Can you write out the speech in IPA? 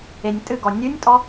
e nʲ tʼ ɨ ɡ ɔ nʲ ʉ nʲ tʼ ɔ

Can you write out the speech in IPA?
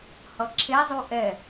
h ʌ ǁʰ e zˤ u ʔ ɛ

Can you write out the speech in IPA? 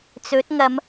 t͡s ɵ˨˥ t̚ ŋ ɐ˨˧ m

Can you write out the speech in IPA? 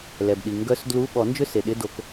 l ɛ˩ b ɗ i˩ ŋ ɡ œ˦˥ s d l u˧˥˧ ɓ ɔ˨˩˦ n d͡ʒ ʏ˥˧ s e˩ ɗ ɪ˧˥˧ d o˨˩˦ k

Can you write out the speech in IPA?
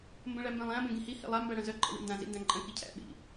m b ə̃ ɭ æ m b ẽ lˠ æ̃ b ẽ ɡ ĩ h i h ḭ lˠ a m b æ ɽ œ̃ z œ ǃʼ ə̰ w ḭ n d ã z ḭ n d æ̃ ǃʼ ə̃ k i cʰ æ̰ ɓ ḭ

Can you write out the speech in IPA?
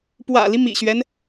p w ä̰˨˩ l i˦ m ḭ˨˩ ɕ ɥ ɛ˦ n

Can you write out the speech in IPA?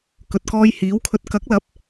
k ɵ˨ t̚ k ɔː˧ j h iː˨˥ w kʰ ɵ˧ t̚ k ɐ˨˥ k̚ l ɐ˨˥ p̚

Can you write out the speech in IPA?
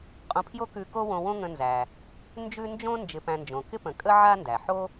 qʼ õ˧ pʰ j o˥ k ʉ˧ k o˥ w õ˧ w õ˥ ŋ ə̃˧ n z æ˩ | n d͡ʒ ʉ˥ n d͡ʒ õ˥ n d͡ʒ ɪ˧ p æ̃˧ n d͡ʒ õ˩ k ɪ˥ p ə̃˩ kʼ ə˥ ʕ a˥ n d æ˩ ħ o˥

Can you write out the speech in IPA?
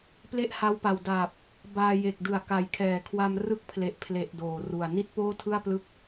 p l e˥˩ ʔ h a˦˥ w p a˨˩ w d aː˨˩ p̚ | b aː˧ j e˨˩ k̚ d ɯ˩˦ a̯ k a˨˩ j kʰ ɛː˨˩ kʰ w a˧ m r ɯ˦˥ k̚ pʰ l e˨˩ ʔ pʰ l e˨˩ ʔ d oː˨˩ r u˨˩ a̯ n i˥˩ t̚ p oː˥˩ tʰ ɯ˥˩ a̯ p l ɯ˦˥ k̚

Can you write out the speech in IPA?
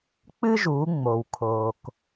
k͡p ɨ˥ ʒ u˩˧ ŋ͡m o˩ w kʰ o˩ k

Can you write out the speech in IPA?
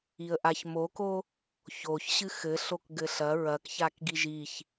i ə̯ ʔ a ç m o k o | ç o ç ɕ ɨ x ɘ ɬ o k ɡ ɘ ɬ ɐ ɹ ɐ k ç a k ɡ i ʒ i ç

